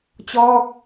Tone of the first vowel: falling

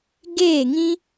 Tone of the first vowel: falling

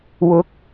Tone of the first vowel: rising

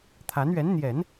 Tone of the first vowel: rising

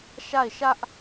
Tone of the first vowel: falling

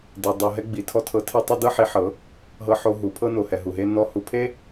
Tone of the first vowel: low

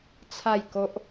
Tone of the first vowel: falling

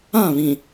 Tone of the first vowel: falling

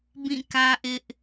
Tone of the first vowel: falling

